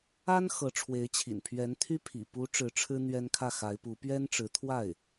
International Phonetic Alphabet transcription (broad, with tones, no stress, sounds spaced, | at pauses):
a˥ n x ɤ˧˥ ʈ͡ʂʰ w e˧˥ ɪ̯ t͡ɕʰ ḭ˨˩ n pʰ ɥ ɛ˧˥ n t̪ʰ y˥ pʰ ḭ˨˩ p u˧˥ ʈ͡ʂ ɻ̩˧˥ ʈ͡ʂʰ ɻ̩˥ n̪ ɥ ɛ˥ n kʰ ä˥˩ x a˧˥ ɪ̯ p u˧˥ p ɥ ɛ˥ n ʈ͡ʂ ɻ̩˧˥ t̪ʰ w a˥˩ ɪ̯